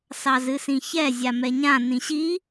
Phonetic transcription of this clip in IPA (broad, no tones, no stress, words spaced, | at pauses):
sɑzɨsĩçɛ zʲamɛɲã nĩɕi